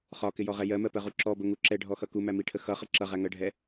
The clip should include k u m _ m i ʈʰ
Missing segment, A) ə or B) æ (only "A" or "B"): B